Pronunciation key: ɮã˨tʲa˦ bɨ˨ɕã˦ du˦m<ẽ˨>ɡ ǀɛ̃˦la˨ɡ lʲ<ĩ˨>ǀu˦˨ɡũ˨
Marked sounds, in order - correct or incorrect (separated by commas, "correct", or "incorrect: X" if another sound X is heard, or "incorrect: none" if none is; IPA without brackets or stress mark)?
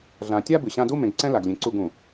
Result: correct, incorrect: ẽ˨